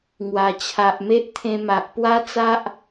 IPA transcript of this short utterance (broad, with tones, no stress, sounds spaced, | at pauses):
ŋ w a˨˩ t͡ɕʰ a˨ ʔ m e˦ ʔ t̪ʰ ẽ˧ m a˨ ʔ p w a˦ t͡s a˦ ʔ